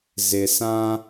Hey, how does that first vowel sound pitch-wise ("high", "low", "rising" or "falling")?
low